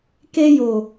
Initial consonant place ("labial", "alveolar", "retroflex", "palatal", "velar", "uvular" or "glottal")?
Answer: velar